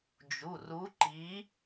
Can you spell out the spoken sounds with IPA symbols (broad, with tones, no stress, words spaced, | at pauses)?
d͡ʒu˩˧˩ru˨˥ǃi˨˥